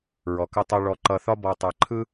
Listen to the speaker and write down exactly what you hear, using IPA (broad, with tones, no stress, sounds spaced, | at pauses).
ɹ ɔ˩ k ə˧ tˤ a˧ ɭ ɔ˧ ǃ ʌ˧ θ ɒ˥ b ɔ˧ tˤ a˧ ǃʰ ɯ˥